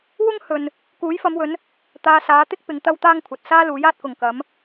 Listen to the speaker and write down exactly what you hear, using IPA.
w ʊ˥ ŋ h ɵ˨ n | k uː˨˥ j f ɐ˨˧ m w ɵ˨˧ n | t̪ aː˧ s aː˨˧ t̪ ɪ˥ k̚ p ɪ˧ ŋ t̪ ɐ˥ w t̪ aː˥ ŋ kʷʰ ɐ˨ t̚ s aː˥ l uː˨˥ j aː˧ t̚ k ʊ˨ ŋ k ɐ˨˧ m

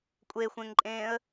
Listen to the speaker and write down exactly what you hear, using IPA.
kʷʼ e xʷ ẽ ŋ ǃʼ ẽː ə̯

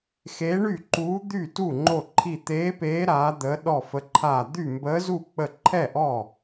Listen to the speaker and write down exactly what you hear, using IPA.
x eː˧˥ ɳ y˥˩ ǃ uː˧˥ d̪ y˥˩ t u˥˩ ŋ͡ǃ o˥˩ ǃʰ i˥˩ t̪ eː˧˥ p eː˧˥ ɾ aː˧˥ d̪ ə˧˥ ɗ ɔ˥˩ f ə˧˥ ǃʰ aː˥˩ d̪ y˥˩ m b əː˧˥ z u˥˩ k͡p ə˥˩ ǃʰ ɛ˥˩ ʔ ɔː˥˩

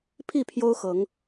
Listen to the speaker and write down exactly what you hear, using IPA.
pʰ i˥˨ pʰ j o˦ ʊ̯ x ɤ˨˦ ŋ

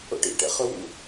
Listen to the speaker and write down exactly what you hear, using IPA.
o̰ ʈ ḭ ʈ ɛ̰ χ ɵ w ṵ

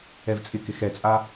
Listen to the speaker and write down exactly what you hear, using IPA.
ɛ v t͡sʼ ɪ k ɪ x ɛ t͡sʼ a

